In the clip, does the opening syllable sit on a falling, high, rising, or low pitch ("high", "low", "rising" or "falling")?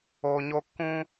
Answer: low